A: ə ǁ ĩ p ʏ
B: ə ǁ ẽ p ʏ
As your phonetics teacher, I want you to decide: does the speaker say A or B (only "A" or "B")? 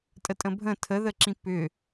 A